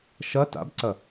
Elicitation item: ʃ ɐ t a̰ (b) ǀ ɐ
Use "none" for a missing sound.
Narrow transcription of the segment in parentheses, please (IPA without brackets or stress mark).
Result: b